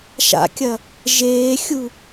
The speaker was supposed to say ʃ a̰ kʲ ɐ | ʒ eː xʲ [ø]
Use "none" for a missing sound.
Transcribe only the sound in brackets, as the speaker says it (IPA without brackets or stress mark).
u